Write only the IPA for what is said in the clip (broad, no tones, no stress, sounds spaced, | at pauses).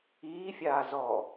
iː fʲ aː z ɔ